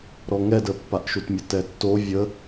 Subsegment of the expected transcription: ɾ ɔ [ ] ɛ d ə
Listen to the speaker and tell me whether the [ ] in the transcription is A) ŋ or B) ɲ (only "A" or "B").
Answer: A